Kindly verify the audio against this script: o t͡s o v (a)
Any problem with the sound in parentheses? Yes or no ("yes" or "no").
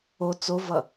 yes